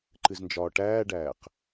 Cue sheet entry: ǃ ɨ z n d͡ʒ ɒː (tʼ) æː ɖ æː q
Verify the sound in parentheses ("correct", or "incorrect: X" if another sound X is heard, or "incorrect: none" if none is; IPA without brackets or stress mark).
incorrect: ʈ